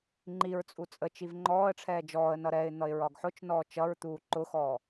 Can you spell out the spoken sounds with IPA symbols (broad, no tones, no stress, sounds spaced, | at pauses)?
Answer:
ŋ͡ǃ i ɹ t͡sʼ u t͡sʼ ə t͡ʃ i v ŋ͡ǃ ɔː ə̯ ʈ͡ʂʰ ɛː d͡ʒ ɔː ə̯ n ʌ ɾ ɛ ɪ̯ n̪ ʌ ɪ̯ ɹ ɒ ɡ ħ ʊ t͡ʃ n ɔː t͡ʃ ʌ ɹ t̪ uː ǃ ʊ x ɔː